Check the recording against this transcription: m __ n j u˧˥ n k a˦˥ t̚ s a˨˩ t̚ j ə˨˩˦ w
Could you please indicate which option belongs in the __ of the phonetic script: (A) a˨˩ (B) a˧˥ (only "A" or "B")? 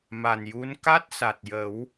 A